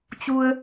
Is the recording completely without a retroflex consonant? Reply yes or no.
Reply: yes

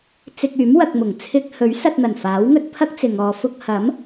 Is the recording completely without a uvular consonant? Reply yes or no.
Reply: yes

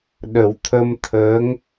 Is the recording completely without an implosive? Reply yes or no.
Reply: no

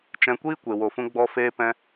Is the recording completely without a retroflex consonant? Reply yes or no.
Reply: yes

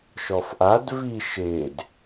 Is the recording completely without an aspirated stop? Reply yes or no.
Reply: yes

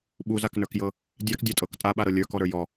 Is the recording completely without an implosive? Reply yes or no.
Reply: no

